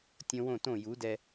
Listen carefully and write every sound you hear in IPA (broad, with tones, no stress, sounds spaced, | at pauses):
tʲ õ˧ w õ˦˨ t õ˦˨ j u˨˦ d ɛ˧